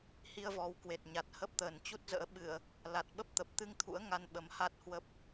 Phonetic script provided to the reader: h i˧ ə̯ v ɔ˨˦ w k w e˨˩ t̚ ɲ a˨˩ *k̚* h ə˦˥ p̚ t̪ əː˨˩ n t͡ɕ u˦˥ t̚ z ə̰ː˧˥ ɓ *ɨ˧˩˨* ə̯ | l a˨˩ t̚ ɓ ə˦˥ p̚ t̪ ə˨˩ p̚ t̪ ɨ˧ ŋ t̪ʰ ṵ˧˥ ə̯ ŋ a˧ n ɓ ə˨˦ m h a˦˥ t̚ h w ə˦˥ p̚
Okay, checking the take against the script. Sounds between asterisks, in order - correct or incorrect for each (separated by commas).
incorrect, correct